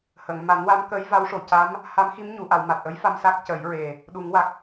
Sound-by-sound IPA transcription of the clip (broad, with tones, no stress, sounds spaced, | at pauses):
h ə˨˩˨ ŋ m a˨˩˦ n w a˧˥ m k ə˧˥ j v a˧˥ w ʂ o˨˩ c a˧˥ m | h a˧˥ m x i˧˥ m ɲ u˨˩˨ ʔ a˨˩˨ w m a˨˩ t̚ ʔ ə˧˥ j f a˧ m s a˦˥ k̚ c ə˨˩˦ j ɹ e˨˩ | ɗ u˨˩˦ ŋ w a˨˩ k̚